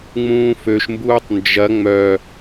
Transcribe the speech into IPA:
ŋ͡m ũː f ø ʃ m b uː tˤ n d͡ʒ ɐ ŋ͡m œ

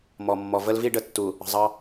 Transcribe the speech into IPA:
m ɔ˨ mː ɔ˨ v ə˦ l v i˦ ɖ ə˨ tː u˨ | ə̤˨ zˤ ɑ˦

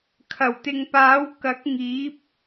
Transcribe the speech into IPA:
kʰ ɐ˨˩ w t̪ ɪ˨ ŋ p aː˨˥ w k ɐ˨˥ k̚ ŋ iː˨˥ p̚

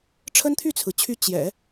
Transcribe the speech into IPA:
ʈ͡ʂʰ ə˥ n t̪ʰ y˥˩ t͡sʰ ɹ̩˩ t͡ɕʰ y˧˥ t͡ɕ j ɛ̰˨˩˦

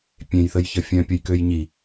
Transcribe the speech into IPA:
pʲ ẽ j θ ə j ç ə fʲ œ̃ pʲ ə j k ø j ɲ i

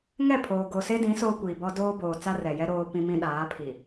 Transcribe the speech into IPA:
ŋ ɛ˦˨ pʰ oː˨ ɡ o˨ s e˦ d ĩ˨˦ s oː˦ kʷ iː˨ b ɔ˦ d oː˦ b oː˨ t͡s a˦ r ɛ˨ j ɛ˦ ɾ oː˦ p ĩ˦ m ĩ˦ ɗ aː˨˦ pʰ i˨

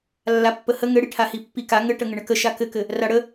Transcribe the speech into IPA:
lː a pː ə h ə ŋ ɘ ɽ i ʈʰ a h i pː i k a ŋ ɘ ʈ ə ŋ ɘ ɳ ɘ k ə ʃ a k ɘ k ɘ | r a ɽ ə

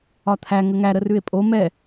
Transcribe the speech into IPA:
ɒ t̪ʰ æ ŋ ə ŋ æ ɾ ə r ʉ e̯ pʼ o m ɛ

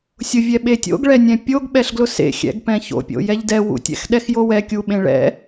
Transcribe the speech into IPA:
sʲ ʊ vʲ ɛ ɓ e tʲ o̰ ɡ ɭ ɛ nʲ ɛ̃ pʲ o ɡ ɓ ɛ ɬ ɡ l ʊ s ḛ xʲ ɛ̰ ɡ p ɛ̃ ç o̰ pʲ o̰ j ɛ ʎ d ɛ w ṵ tʲ ɛ̰ x ɗ ɛ x j o w ɛ kʲ u ɓ ẽ ɭ ɛ̰

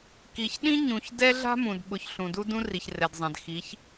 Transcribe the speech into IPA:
k i˨ ç ɗ ĩ˦ ɲ ũ˨ ç d ɛ˦ ɮ a̤˦ m ũ˨ d ɓ ʊ˨ ç ɬ ũ˨ d u˦ d ũ˦ r i˨ ç r ɛ˨ d zˤ ã˨ d x i˨˦ ç

